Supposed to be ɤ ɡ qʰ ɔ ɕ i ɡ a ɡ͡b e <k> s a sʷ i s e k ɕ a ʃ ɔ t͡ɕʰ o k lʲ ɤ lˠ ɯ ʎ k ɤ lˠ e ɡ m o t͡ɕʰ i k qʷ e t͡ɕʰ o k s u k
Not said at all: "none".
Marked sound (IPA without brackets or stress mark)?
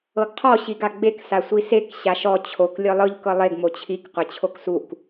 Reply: k